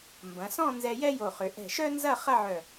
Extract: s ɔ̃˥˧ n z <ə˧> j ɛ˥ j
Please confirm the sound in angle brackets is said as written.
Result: no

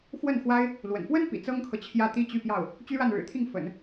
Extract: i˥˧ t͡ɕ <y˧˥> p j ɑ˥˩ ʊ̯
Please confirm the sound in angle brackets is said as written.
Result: no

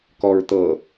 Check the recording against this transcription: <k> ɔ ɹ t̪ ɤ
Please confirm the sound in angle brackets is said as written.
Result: yes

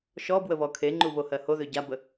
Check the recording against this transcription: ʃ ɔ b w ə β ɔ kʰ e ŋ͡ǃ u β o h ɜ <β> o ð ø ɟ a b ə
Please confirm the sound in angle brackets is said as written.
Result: no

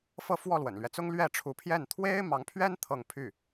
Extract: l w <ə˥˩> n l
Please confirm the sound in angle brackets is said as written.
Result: no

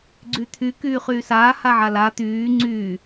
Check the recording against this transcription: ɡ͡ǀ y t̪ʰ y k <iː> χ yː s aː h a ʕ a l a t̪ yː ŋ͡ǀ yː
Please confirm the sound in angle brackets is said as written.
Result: no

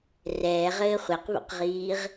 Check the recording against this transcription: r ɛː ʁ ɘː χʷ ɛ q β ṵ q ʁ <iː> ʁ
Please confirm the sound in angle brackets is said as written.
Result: yes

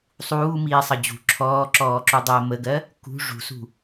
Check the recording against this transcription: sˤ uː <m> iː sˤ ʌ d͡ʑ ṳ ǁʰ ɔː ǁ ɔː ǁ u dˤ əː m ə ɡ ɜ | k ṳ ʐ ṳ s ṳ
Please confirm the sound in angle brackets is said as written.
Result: yes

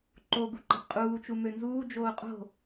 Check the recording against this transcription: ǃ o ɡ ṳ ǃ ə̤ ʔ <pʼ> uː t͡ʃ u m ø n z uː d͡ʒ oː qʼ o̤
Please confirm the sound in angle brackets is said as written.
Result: no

